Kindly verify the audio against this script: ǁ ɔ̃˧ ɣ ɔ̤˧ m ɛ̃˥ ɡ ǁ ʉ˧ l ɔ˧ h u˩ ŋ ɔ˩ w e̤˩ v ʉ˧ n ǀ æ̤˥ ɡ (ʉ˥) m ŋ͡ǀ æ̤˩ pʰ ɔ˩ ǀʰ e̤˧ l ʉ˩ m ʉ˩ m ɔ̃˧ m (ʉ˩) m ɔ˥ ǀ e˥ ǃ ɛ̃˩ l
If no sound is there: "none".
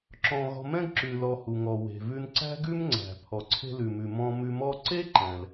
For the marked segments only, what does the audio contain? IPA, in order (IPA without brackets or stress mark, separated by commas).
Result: ʉ˥, ʉ˧